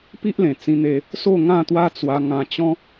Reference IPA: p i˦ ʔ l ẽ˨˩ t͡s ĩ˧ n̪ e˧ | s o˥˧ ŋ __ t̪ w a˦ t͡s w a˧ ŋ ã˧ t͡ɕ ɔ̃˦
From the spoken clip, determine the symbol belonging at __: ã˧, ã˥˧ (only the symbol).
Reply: ã˥˧